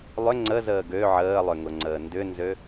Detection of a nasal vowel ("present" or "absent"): absent